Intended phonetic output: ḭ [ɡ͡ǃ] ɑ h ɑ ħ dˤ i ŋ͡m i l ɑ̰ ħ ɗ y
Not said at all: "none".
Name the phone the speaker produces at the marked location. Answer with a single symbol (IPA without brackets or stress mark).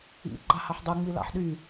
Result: ɡ͡ǃ